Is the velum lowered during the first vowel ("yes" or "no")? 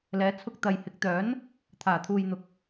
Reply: no